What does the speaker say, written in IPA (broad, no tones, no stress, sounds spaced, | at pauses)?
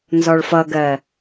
n z ɔ ɭ f ʌ ɡ ɜ